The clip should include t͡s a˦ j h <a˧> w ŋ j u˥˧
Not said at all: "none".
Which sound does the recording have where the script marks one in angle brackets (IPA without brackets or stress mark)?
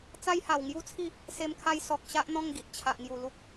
a˨˩